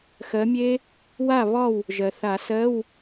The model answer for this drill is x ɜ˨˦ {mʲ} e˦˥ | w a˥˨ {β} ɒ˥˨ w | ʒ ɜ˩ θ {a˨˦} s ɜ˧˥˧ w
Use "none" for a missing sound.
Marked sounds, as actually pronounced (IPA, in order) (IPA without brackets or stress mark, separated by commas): mʲ, β, a˨˩˦